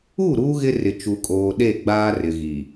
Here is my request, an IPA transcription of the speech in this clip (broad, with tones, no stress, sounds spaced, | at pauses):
u˦˨ ɾ uː˦ ɣ ɪ˦ r ɪ˨ t͡ʃ u˨ kʼ oː˨ ɗ e˦˨ ɡ͡b aː˦ r ɪ˨ ɣ i˨